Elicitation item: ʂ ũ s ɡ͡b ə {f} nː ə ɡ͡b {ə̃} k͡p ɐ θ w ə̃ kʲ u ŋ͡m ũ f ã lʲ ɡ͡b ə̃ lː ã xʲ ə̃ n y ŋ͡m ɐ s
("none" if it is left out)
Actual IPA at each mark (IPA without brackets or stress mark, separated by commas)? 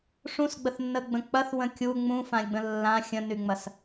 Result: θ, ə̃